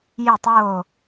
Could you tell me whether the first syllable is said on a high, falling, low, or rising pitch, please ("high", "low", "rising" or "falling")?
falling